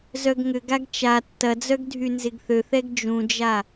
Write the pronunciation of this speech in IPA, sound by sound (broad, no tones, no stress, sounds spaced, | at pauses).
z œ ɡ ŋ ʏ ɡ a ɡ t͡ʃ a tː ɐ d͡z œ ɡ dʱ y n z ɪ ɡ θ ø θ ɛ ɡ d͡ʒ ũ d͡ʒ a